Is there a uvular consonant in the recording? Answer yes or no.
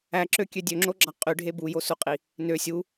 yes